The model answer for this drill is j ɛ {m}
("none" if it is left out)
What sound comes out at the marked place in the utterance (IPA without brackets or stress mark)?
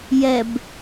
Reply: b